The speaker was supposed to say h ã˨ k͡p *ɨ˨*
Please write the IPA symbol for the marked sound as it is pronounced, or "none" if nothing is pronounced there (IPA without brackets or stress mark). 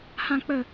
ə˨